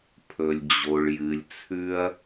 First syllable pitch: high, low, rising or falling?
low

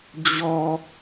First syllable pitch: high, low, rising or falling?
low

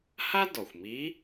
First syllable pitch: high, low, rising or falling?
high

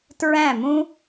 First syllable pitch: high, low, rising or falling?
falling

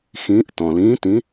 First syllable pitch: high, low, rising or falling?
rising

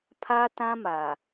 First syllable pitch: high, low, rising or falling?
high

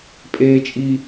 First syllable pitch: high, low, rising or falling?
high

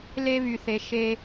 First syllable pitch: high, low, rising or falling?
high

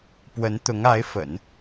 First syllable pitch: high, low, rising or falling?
rising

